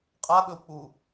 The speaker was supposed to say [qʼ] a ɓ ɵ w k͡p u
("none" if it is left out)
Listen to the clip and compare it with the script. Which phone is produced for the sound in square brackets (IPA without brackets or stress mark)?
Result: qʼ